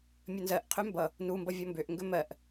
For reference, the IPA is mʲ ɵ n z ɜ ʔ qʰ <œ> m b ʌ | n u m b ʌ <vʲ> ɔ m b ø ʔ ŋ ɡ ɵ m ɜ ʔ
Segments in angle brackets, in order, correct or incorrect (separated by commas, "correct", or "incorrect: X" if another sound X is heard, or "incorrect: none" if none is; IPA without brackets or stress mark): incorrect: ø, correct